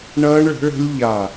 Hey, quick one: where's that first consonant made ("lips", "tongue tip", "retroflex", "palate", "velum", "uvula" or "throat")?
retroflex